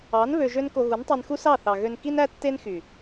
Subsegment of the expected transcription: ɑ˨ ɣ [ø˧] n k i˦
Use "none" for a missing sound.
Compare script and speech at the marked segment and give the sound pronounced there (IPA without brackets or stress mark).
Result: ø˧